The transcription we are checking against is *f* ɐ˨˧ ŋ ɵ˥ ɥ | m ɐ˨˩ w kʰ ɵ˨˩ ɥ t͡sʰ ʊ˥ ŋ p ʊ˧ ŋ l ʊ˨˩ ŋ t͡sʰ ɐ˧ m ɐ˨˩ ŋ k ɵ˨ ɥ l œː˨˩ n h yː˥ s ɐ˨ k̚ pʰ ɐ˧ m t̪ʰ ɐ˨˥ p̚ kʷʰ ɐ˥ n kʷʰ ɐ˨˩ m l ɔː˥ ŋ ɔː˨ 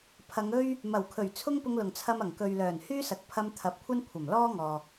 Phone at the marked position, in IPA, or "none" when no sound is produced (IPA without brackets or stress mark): pʰ